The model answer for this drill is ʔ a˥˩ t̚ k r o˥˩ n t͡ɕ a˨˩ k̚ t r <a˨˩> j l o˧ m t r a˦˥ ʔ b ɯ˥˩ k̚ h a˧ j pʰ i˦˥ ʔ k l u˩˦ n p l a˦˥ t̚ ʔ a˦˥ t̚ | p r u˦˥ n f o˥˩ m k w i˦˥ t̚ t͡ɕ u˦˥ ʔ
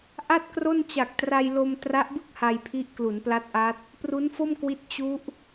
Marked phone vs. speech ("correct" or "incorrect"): incorrect